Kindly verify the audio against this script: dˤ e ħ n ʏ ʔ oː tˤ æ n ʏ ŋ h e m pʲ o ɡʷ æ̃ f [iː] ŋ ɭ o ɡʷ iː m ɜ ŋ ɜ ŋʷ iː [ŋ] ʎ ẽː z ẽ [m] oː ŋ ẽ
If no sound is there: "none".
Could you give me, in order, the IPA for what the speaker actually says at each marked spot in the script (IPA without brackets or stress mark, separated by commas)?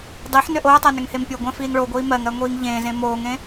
iː, ŋ, m